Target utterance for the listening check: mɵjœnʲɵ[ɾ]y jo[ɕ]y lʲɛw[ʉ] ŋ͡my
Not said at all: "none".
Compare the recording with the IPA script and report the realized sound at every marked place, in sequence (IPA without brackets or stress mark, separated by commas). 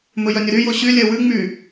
ɾ, ɕ, ʉ